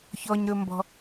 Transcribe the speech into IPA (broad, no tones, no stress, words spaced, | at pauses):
çɔɲɾɵmbɔ̤